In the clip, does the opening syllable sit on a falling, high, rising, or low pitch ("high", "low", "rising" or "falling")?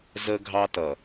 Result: high